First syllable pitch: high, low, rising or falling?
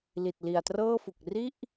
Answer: low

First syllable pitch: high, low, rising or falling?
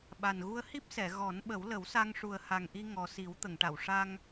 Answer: low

